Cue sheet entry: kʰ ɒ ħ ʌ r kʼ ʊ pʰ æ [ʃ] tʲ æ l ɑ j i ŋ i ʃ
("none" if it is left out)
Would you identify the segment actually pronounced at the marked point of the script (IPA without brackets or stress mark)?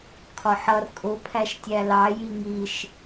ʃ